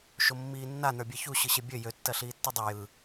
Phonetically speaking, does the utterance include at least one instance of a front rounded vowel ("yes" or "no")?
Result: yes